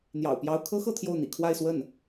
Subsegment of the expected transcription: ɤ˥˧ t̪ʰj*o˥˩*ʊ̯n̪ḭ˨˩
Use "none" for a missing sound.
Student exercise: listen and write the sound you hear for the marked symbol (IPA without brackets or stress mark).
o˥˩